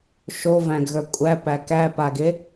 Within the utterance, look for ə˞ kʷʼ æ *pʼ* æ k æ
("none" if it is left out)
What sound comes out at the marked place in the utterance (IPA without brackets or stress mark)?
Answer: p